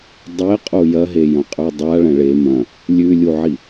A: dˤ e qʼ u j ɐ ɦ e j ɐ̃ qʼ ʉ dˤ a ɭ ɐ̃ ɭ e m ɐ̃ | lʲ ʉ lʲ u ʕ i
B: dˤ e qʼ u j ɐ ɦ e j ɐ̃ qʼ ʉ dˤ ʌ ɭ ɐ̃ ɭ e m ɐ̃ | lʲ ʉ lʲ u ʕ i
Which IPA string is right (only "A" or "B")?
A